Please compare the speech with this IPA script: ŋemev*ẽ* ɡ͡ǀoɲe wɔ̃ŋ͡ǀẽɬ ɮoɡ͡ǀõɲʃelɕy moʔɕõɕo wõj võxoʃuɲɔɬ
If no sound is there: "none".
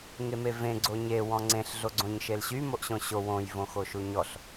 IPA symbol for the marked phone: ẽ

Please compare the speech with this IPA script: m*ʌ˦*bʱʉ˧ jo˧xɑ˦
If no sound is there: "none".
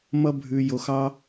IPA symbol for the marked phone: ʌ˦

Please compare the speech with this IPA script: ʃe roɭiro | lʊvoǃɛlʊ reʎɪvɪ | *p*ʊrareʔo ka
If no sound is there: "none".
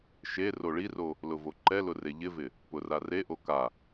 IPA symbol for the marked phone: p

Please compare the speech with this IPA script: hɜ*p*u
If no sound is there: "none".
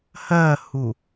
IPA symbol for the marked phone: h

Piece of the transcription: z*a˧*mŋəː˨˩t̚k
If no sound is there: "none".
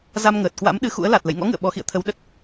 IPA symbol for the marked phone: a˧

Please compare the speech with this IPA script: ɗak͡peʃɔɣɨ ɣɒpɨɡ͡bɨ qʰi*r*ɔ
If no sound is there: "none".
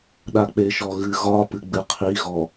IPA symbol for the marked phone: ɣ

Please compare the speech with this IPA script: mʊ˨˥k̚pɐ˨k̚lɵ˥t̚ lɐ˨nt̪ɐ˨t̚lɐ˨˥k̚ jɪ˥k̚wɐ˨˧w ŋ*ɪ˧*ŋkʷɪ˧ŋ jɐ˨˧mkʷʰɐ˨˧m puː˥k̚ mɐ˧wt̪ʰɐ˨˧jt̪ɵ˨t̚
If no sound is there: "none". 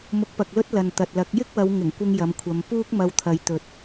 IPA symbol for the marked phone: ɪ˨˩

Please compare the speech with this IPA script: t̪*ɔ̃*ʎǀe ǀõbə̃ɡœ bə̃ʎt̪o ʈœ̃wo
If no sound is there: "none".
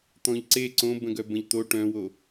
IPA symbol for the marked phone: ɔ̃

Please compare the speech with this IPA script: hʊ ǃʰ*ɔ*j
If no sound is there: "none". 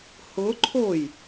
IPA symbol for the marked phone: o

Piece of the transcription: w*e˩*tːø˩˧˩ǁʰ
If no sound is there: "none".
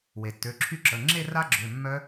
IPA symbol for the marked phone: e˩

